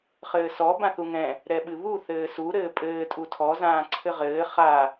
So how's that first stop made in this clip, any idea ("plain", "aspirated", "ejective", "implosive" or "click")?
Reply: plain